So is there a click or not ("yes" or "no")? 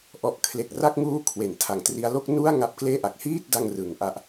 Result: no